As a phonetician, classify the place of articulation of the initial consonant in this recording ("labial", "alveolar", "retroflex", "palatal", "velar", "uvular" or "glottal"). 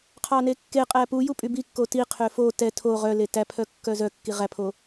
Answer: uvular